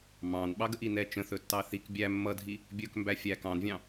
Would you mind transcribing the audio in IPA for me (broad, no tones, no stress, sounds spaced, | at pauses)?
m ɑ̃ n ɓ ɑ ɡ ə ʔ i n ɛ t͡ʃ ə̃ θ ɵ tː ɑ θ i k bʲ æ mː ʌ dʱ i | bʲ ɵ k m b æ fʲ æ k ɑ̃ n vʲ ɑ̃